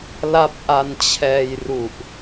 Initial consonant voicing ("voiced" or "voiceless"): voiced